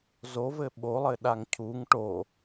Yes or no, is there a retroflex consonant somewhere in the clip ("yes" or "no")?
yes